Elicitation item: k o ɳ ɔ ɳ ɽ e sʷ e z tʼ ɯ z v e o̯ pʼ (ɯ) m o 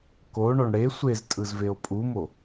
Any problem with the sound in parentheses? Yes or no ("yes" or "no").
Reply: yes